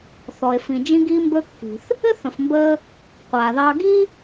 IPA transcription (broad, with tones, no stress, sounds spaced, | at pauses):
θ ɔ˩ e̯ f ĩ˩ d͡ʒ ĩ˧ ɡ iː˧ m b ɵ˧ kː i̤˩ θ | ɘ˥ θ ə̃˩ f m b əː˧ | qʷ aː˩ ð ɑ˧ ɡ i˥